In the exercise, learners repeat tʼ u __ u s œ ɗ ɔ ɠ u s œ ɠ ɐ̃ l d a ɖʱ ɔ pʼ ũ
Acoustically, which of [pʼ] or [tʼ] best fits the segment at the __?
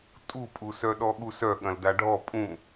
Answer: pʼ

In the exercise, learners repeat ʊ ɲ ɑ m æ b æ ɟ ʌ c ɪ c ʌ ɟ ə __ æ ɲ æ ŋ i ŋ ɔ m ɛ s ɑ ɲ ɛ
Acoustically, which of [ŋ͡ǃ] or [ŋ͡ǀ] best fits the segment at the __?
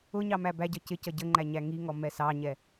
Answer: ŋ͡ǃ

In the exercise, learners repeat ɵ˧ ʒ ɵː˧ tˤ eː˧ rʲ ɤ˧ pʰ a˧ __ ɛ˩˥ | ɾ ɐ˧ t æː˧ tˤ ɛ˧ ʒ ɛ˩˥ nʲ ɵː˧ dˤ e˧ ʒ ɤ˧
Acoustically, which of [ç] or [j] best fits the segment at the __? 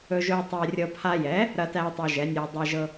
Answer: j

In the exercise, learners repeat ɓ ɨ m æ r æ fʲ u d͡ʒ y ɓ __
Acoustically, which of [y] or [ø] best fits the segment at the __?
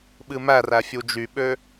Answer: ø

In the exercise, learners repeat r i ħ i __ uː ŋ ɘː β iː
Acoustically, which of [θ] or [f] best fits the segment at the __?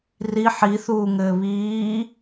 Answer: θ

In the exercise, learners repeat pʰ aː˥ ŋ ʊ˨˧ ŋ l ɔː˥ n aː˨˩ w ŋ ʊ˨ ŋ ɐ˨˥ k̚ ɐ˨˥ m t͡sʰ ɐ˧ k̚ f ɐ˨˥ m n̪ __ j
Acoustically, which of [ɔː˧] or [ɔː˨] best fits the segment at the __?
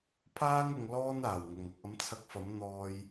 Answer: ɔː˧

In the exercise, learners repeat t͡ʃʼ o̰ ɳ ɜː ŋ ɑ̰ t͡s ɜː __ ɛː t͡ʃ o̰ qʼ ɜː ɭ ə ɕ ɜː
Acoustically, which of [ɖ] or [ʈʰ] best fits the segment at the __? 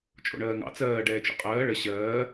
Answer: ɖ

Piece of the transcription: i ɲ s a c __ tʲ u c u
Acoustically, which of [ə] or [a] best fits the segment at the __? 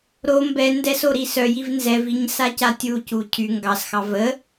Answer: a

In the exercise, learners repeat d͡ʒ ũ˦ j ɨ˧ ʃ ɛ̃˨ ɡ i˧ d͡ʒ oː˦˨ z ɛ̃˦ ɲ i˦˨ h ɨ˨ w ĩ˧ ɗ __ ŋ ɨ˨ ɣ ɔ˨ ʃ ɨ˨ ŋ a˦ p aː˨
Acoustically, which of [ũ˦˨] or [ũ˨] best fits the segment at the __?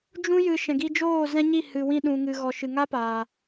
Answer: ũ˨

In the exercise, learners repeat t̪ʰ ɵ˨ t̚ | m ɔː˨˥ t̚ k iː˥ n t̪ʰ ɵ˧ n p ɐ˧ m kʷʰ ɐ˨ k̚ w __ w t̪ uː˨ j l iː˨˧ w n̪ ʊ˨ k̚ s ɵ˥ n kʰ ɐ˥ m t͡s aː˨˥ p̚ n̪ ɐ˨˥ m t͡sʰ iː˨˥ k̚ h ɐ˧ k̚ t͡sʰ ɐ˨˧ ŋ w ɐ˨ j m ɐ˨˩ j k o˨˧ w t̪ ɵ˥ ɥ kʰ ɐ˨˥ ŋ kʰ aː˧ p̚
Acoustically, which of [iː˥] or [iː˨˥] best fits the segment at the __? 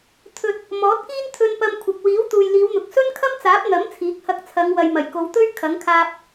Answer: iː˨˥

